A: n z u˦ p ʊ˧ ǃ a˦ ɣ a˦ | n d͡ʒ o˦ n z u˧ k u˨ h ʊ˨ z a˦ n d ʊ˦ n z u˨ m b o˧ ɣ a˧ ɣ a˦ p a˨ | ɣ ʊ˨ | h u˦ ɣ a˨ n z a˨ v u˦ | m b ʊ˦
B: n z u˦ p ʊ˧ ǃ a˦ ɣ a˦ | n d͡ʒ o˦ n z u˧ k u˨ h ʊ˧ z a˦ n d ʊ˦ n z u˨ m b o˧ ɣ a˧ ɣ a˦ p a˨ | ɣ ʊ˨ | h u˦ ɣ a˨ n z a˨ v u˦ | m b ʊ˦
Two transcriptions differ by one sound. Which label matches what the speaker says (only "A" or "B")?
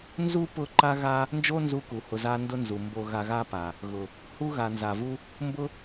B